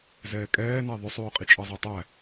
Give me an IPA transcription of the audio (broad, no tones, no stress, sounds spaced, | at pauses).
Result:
z ɛː kʼ ɛː n æ ðˤ ʏ sˤ ʉː qʼ i t͡ʃʼ ɤ zˤ æ tˤ æ